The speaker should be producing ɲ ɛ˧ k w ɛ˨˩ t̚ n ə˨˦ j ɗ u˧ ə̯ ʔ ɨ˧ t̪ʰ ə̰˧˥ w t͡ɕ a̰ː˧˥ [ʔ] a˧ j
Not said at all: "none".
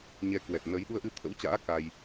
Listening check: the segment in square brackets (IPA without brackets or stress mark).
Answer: k